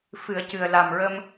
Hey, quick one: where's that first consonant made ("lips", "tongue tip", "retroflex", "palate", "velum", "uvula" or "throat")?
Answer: lips